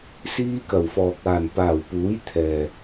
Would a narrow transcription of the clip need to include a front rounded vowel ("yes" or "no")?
no